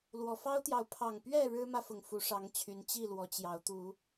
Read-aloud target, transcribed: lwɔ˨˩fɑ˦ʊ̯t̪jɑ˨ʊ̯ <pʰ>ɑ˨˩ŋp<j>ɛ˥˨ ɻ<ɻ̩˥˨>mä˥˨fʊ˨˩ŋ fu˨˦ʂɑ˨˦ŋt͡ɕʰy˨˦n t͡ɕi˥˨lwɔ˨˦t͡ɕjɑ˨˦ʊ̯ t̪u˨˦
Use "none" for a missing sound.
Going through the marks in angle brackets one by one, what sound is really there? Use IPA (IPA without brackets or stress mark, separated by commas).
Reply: pʰ, ɥ, ɻ̩˦